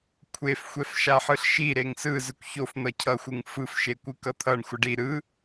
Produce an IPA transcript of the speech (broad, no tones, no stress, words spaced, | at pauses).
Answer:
kʷʰefxʷɛfʃaħɯɬ ʃi ɾeŋsɯ zɯkʷçofn̪ʌ cʰʌxʷɯŋ fɯf ʃekʷɯkʌt̪ʰʌɳ xʷʌɖi ɾɯ